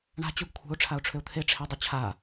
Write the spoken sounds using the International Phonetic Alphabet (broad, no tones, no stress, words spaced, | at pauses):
ɳa̤ t͡ɕuɡkʷʰe̤ʊ̯ ʈ͡ʂʰaʊ̯ʈ͡ʂʰʏʊ̯t̪ʰe ʈ͡ʂʰe dˤʏt͡ɕʰa